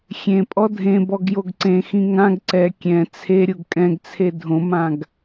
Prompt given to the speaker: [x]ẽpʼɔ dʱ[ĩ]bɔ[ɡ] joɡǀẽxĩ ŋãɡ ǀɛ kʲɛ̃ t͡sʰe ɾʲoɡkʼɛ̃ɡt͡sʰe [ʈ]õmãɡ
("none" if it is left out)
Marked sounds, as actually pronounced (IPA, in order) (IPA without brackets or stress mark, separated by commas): xʲ, ẽ, ɡ, dʱ